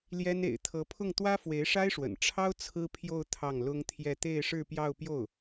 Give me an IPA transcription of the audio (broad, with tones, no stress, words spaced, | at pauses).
ljɛ˥n ḛ˨˩ɪ̯t̪ʰɤ˧˥pʰʊ˥˩ŋ t̪wä˥fwe˧˥ɪ̯ʂa˥ɪ̯ʂwə̰˨˩n ʈ͡ʂʰɑ˥ʊ̯ t͡sʰɹ̩˥pʰjo˥˧ʊ̯ t̪ʰɑ˥˩ŋlʊ˥ŋt̪ʰjɛ˥˧ t̪e˥˧ɪ̯ʂɻ̩˥˧pjɑ˥˧ʊ̯pjo˥˩ʊ̯